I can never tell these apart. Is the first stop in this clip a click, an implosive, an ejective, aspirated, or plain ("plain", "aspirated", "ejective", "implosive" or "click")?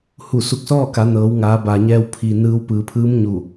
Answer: plain